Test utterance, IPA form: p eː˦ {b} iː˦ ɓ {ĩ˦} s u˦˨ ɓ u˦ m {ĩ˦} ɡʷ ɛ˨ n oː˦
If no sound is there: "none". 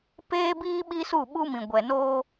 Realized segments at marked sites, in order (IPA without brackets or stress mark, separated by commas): b, i˦, ĩ˨